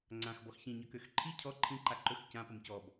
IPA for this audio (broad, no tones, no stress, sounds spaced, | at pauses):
ŋ͡ǀ ã x b ɔ x ç ĩ ɲ ʌ k ø x ǃʰ i cʰ ɔ ǃʰ ĩ ǃ a ǃ ɵ x c ã p ʌ m c ɔ b